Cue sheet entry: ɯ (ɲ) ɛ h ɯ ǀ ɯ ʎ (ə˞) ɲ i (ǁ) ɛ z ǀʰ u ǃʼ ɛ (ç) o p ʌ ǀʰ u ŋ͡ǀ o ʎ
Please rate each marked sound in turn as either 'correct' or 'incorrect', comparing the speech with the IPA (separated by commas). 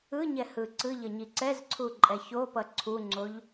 correct, incorrect, incorrect, correct